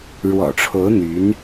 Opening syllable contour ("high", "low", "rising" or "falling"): low